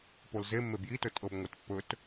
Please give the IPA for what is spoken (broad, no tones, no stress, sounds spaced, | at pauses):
p o l z e mː e b j i t ɵ tʼ ɤ b ŋʷ e t pː ɵ t